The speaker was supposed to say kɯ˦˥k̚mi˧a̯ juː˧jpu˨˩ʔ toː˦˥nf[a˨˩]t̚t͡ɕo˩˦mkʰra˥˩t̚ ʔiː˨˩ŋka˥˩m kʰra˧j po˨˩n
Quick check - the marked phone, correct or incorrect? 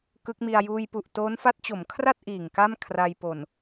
incorrect